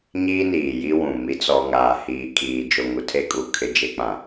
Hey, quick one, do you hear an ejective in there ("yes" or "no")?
yes